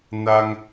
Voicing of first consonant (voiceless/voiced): voiced